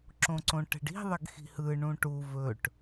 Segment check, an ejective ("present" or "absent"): absent